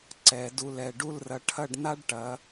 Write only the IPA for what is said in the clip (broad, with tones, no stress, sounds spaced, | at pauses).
ǀ ɛ˩˧ d u˧˩ l ɛ˧˩ ɖ u˥˧ l r ɐ˧ ʈʰ ɐ˥˧ ɖ n a˥ ɖ ʈ ɐ˩˧